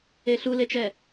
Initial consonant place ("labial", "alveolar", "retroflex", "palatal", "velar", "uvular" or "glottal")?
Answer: alveolar